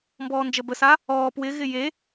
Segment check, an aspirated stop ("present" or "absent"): absent